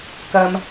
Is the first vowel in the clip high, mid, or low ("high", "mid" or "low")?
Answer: low